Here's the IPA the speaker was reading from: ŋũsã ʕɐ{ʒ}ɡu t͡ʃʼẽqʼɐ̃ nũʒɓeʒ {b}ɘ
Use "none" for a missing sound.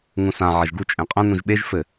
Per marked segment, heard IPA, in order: ʒ, f

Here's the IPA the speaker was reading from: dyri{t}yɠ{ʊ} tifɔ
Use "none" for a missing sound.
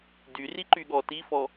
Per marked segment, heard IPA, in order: ǃ, ɔ

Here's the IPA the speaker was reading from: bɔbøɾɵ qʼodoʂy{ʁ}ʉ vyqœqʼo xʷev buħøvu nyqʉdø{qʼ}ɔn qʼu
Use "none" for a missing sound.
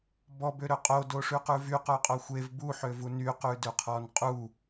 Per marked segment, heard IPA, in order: q, qʰ

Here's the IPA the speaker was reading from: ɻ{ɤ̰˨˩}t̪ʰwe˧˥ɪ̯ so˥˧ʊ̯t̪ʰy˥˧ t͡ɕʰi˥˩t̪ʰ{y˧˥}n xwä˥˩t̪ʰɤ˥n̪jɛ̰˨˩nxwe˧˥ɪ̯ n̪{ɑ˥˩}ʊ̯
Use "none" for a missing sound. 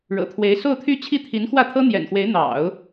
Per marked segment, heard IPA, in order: ɤ̰˨˩, i˧˥, ɑ̰˨˩˦

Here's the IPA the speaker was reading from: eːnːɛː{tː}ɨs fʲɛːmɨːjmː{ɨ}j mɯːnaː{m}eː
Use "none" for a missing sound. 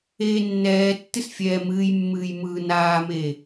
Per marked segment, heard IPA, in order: tː, ɨː, m

